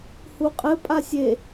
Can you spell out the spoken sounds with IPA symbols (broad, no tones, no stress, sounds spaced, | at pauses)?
h u qʼ ɘ pʼ a sʲ e